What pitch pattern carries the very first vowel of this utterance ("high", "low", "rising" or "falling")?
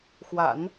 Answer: low